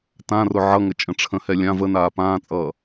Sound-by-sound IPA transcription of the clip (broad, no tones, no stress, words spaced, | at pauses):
tãrʊ ʕʌŋət͡ʃʼə̃ ʈ͡ʂʰə̃hɛ lʲã vənaː pãːt͡sʼʌː